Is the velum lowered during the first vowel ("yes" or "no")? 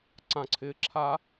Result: yes